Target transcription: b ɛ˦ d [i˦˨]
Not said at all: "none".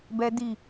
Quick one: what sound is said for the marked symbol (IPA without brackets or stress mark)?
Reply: i˦˨